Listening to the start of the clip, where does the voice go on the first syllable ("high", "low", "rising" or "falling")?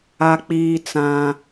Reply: high